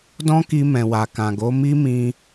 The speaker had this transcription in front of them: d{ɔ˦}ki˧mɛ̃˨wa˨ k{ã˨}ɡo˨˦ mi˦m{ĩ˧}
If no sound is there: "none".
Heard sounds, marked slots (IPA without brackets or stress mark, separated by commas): ɔ̃˦, ã˨, ĩ˧